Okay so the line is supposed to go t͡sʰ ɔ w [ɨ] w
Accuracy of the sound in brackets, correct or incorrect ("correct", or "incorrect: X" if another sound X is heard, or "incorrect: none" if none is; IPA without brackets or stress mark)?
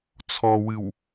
correct